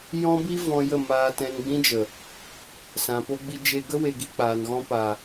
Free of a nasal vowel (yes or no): no